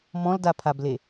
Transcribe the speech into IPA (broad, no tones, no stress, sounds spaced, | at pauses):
m ɔ̃ l d a pʰ a b l e